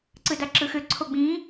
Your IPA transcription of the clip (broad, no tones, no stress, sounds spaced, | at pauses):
ǀ ɯ d a ǁ ɯ x ʏ ǀʰ o ɡ͡b ĩ